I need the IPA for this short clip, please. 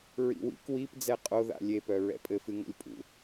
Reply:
ɹ ḭ w ḭ k w i p d͡z ɛ qʼ o ð a̰ lʲ e p œ ɹ ɛ̰ pʼ ɘ f ɨ ŋ o̰ lʲ pʼ ṵ

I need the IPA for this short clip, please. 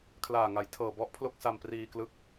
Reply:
kʰ l aː˨˩ ŋ a˩˦ j tʰ ɤː˨˩ b ɔ˥˩ ʔ pʰ l o˥˩ k̚ s a˧ m p r iː˧ k l ɯ˦˥ k̚

